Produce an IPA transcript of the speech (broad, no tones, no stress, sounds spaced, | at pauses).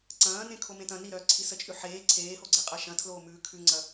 ǀ ɐ̃ː n ẽ kʰ o m ẽ t ɐ̃ n i ɾ œː ǀʰ i s ə t͡ʃʼ ʉ ħ eː ǀʰ eː h o ɡ͡ǀ e qʼ ɐ ʃ ɐ̃ tʰ l oː m ʉː kʰ ʉ ŋ͡ǀ ɐ